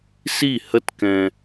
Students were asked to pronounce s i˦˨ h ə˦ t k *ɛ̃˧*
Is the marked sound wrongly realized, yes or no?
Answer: no